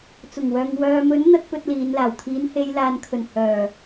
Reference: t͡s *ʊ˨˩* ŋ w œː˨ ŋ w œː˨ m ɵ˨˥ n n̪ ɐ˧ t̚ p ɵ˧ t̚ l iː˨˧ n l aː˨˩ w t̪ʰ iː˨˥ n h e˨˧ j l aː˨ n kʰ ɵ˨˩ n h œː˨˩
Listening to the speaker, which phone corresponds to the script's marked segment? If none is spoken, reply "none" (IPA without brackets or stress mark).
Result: ʊ˨˩